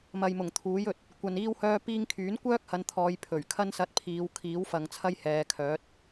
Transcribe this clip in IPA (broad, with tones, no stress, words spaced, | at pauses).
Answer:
mɐ˨jmʊ˨˩ŋ t̪ʰuː˨˥jɵ˨t̚ | kʷɐ˨n iː˥whœː˥piː˥ŋ kʰyː˨˥nkʷœː˥k̚hɐ˨˧nt̪ʰɔː˨˧j pʰɵ˨˩ɥkʰɐ˥nsɐ˧t̚ pʰiː˨˧wkʰiː˨˥wfɐ˨ŋ t͡sʰɐ˥jhɛː˨˧kʰœː˨˥t̚